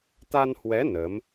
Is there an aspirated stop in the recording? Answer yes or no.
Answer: no